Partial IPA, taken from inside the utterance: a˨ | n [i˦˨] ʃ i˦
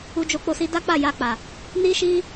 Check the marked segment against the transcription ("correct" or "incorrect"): incorrect